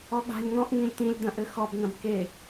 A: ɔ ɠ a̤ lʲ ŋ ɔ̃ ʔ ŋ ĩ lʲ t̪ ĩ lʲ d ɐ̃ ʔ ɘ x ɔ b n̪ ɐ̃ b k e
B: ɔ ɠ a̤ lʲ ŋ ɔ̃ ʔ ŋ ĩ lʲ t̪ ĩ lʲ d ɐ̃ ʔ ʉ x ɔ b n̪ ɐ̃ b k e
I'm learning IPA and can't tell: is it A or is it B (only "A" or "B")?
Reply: A